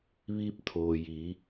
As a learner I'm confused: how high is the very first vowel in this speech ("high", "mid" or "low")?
high